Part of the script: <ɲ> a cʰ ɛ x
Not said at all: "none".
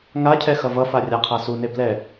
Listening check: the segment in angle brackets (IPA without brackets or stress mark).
ŋ